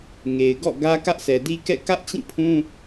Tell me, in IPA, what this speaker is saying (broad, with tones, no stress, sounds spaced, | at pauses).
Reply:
ŋ e˨ ɪ̯ ɡ ɔ̰˦˨ ɡ ä˦ k ä˦ ʔ s ɛ˨ d i˦ k ɛ̰˦˨ k ä˦ ʔ t͡ɕ ĩ˦˨ pʰ ũ˦